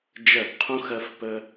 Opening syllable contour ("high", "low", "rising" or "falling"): falling